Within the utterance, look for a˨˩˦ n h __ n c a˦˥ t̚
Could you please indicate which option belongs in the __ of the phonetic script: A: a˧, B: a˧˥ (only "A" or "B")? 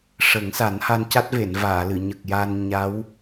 A